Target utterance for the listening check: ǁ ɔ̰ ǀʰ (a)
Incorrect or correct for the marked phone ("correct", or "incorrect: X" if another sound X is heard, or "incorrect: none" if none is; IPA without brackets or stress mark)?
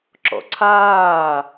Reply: incorrect: aː